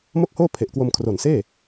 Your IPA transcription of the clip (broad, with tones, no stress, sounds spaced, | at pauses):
m o˥˩ k̚ h oː˥˩ pʰ e˨˩ ʔ k w o˧ m kʰ r o˨˩ n s eː˥˩